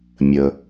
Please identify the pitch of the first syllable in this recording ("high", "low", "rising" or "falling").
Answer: low